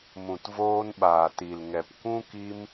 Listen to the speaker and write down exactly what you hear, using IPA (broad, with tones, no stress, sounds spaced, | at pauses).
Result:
m ũ˨ t v oː˧ n ɓ aː˨ t i˨ l ŋ ɛ˨ p kʷ ũ˦ k i˧ m